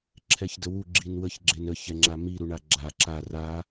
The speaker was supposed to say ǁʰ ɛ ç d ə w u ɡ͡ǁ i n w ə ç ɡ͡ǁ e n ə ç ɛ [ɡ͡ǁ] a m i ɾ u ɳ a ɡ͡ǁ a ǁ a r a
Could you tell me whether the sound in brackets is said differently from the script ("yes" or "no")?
yes